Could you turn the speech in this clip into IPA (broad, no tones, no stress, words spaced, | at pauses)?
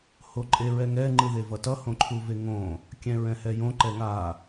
hoǃʼeɹɛŋɛ ŋ͡ǃɯðevʌtʌ hõǃʰuveŋõ | kʲɛ̃ɹɛ̃hɛjõ ǃɛŋa